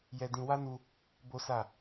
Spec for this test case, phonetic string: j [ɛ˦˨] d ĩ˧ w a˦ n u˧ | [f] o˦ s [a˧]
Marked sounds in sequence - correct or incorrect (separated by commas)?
incorrect, incorrect, incorrect